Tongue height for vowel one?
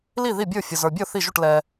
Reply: high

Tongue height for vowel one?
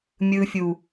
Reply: high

